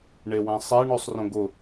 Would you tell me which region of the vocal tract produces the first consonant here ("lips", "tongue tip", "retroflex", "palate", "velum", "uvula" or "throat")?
retroflex